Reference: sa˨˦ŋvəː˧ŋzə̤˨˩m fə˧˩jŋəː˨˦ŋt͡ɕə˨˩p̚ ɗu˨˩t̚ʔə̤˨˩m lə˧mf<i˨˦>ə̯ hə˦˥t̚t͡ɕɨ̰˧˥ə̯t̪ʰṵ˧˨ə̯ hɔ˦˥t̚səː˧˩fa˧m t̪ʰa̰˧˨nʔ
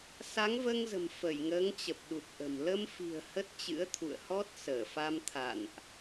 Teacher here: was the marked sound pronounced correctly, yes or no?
no